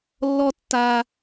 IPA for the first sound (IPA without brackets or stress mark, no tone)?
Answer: lː